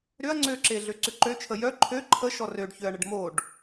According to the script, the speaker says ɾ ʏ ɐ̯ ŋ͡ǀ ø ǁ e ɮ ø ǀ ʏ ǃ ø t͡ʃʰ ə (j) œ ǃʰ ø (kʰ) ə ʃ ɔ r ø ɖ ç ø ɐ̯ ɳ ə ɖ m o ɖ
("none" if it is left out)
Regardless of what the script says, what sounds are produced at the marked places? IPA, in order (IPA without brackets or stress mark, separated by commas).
j, ǃʰ